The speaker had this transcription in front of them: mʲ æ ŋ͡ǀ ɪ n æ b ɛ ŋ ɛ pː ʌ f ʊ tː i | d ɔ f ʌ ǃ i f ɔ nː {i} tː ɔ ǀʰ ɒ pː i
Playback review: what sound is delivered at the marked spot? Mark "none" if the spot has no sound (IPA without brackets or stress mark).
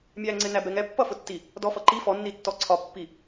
i